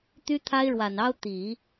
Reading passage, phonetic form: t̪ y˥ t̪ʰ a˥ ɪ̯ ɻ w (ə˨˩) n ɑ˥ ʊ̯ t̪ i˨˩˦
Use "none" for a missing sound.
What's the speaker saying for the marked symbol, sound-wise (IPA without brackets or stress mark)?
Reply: a˨˩